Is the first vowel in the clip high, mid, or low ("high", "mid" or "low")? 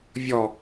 mid